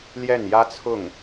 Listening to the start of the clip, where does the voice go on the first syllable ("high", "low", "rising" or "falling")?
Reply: falling